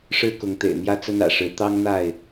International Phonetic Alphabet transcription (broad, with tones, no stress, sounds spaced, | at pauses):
ʂ ɻ̩˦ k ʊ˨˦ ŋ t̪ ḛ˨˩ ɪ̯ m j ä˦ t͡s ə˦ n ä̰˨˩ ʂ ɻ̩˨˦ t̪ ɑ˦ ŋ n̪ a˥˨ ɪ̯